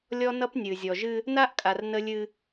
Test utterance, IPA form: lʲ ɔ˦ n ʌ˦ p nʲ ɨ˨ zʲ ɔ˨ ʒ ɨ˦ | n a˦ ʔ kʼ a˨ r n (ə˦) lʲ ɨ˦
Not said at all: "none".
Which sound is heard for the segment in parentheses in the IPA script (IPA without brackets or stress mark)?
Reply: ə˦